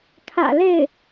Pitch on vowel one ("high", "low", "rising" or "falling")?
low